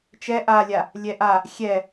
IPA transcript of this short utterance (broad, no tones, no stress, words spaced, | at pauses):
t͡ʃɛ ʔalʲa | lʲɛʔa | xʲɛ